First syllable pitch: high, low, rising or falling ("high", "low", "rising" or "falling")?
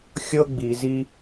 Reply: high